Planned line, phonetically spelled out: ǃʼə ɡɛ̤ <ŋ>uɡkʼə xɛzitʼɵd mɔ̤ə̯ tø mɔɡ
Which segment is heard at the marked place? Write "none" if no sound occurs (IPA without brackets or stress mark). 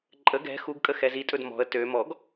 x